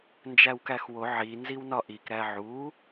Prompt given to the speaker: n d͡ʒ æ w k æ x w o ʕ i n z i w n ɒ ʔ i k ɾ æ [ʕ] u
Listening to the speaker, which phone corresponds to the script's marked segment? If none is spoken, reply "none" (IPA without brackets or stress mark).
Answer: ʕ